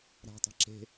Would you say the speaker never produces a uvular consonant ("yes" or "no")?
yes